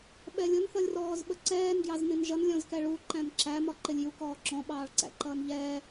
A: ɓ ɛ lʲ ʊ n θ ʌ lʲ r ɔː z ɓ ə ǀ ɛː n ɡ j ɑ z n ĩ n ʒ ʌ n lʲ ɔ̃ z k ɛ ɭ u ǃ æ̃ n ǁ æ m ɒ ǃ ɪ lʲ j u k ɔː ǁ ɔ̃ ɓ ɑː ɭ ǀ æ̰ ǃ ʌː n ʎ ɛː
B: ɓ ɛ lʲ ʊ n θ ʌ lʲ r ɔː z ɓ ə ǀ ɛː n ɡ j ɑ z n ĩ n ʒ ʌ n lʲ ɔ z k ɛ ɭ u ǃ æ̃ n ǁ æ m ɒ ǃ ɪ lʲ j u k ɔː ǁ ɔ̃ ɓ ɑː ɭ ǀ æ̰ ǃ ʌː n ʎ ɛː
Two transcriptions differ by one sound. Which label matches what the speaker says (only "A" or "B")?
A